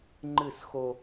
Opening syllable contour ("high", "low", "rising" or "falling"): falling